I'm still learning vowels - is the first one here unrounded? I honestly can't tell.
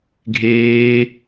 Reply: yes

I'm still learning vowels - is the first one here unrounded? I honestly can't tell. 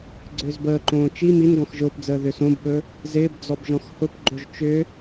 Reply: no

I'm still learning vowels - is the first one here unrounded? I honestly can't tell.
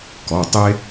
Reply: no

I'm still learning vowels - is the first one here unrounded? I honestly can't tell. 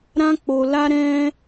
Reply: yes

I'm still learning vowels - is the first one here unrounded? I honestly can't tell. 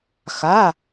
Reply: yes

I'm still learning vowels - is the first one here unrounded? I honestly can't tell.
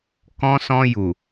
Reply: no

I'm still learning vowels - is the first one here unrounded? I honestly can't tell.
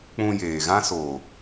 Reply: no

